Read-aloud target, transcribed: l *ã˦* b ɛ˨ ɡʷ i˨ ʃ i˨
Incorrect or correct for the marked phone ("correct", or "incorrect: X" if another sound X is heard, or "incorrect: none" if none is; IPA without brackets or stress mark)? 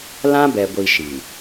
correct